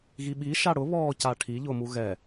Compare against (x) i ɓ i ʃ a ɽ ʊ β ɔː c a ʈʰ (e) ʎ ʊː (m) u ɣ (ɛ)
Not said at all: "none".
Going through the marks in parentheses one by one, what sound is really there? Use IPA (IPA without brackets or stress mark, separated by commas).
ɣ, i, m, ɛ